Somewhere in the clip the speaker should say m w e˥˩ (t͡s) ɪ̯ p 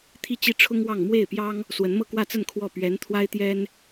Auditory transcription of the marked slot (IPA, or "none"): none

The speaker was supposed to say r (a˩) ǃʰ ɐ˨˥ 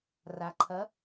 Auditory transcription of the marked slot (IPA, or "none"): a˩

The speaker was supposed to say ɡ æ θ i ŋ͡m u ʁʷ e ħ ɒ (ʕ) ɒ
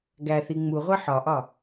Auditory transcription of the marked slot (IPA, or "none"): ʔ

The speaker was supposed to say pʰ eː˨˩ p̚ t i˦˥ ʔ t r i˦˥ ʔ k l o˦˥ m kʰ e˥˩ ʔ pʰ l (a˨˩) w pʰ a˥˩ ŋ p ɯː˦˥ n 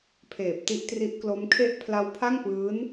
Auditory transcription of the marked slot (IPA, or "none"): a˦˥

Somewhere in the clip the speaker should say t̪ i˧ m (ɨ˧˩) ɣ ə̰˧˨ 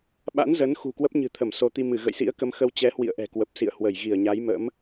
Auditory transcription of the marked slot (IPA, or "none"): ɨ˧˩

